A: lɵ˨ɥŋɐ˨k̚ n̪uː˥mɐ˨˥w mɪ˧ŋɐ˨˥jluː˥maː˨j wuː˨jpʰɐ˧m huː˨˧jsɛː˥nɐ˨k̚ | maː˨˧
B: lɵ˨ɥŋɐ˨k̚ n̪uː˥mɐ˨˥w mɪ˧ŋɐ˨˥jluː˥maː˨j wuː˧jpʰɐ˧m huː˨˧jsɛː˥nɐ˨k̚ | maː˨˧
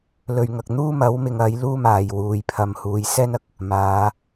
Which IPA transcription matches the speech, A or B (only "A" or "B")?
A